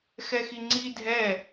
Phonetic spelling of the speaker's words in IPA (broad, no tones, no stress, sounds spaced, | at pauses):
x ɛ x i ŋ͡ǀ i dʱ ɛ